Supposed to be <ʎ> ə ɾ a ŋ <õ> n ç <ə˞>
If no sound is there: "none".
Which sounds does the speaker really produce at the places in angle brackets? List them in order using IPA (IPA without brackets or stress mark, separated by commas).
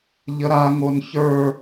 ʎ, o, ə˞